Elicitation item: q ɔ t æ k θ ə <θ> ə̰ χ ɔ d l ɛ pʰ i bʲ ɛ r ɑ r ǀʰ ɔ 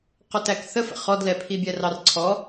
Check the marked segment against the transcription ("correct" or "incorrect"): incorrect